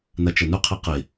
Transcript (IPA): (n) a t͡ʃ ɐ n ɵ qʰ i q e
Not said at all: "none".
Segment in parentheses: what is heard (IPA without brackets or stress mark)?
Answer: n